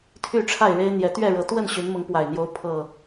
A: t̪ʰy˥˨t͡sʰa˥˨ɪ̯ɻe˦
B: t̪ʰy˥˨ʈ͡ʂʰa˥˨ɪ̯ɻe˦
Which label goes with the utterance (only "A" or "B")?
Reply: B